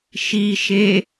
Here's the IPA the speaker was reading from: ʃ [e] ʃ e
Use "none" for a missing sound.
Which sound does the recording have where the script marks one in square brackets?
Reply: i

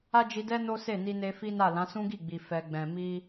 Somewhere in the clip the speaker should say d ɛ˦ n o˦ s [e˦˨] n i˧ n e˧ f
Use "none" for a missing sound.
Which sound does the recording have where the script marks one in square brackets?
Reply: e˦˨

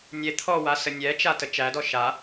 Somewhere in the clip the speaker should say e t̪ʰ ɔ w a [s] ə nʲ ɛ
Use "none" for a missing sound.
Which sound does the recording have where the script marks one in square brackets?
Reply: s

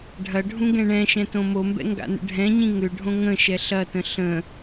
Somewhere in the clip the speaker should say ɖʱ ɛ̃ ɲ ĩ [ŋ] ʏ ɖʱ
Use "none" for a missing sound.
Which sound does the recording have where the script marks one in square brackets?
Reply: ŋ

